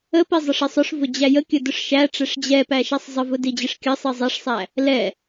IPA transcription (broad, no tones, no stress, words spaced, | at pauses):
əpi zˤəʂɪsˤʊʂvʊ d͡ʑæjəkʲə dʊʂʃæʈ͡ʂɛʂ d͡ʑɛ pæʃæsˤzˤəvʊ did͡ʑɪʂkʲəsˤi zˤɛʂsˤæ | lɛ